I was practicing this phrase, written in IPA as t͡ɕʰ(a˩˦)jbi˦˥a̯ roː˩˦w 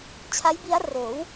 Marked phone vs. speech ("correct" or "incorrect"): incorrect